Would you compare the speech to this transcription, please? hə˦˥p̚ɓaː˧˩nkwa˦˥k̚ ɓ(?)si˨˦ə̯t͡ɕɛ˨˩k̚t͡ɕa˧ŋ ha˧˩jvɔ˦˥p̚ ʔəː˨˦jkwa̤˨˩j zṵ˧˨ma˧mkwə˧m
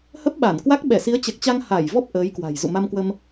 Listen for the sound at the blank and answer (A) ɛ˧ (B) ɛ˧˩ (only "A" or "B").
B